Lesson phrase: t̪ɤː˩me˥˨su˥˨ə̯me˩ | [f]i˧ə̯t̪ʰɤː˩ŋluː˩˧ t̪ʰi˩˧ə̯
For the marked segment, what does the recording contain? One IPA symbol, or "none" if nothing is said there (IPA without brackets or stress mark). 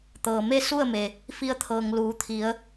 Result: f